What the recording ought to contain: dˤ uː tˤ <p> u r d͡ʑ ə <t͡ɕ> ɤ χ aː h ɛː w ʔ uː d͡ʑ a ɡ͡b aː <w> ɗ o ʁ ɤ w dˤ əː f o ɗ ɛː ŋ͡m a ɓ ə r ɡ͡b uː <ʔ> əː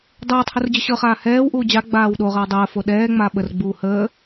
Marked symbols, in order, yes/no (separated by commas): no, no, yes, no